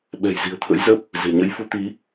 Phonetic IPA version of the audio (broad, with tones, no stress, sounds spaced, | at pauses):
ɓ ɛ̤˨˩ j z i̤˨˩ ə̯ t̪ʰ ə̰˧˥ j z ə˦˥ p̚ | z e̤˨˩ ɲ ə̰˧˥ j f u˨˦ t̪ i˨˦